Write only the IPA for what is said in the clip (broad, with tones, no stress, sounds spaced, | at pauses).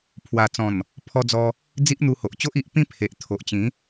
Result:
pʰ w a˨˩ t͡s ɔ̃˨˩ n | pʰ ɔ˧ d͡z ɔ˧ | d͡z i˦ ʔ n̪ u˧ h o˨ ʔ t͡ɕ o˦ ʔ i˨ ʔ p ĩ˥˧ pʰ e˨ ʔ t̪ʰ o˨ ʔ t͡ɕ ĩ˨˦